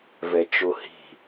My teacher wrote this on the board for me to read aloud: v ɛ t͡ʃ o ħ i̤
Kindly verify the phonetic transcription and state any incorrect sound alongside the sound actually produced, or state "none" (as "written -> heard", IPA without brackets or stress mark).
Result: ħ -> h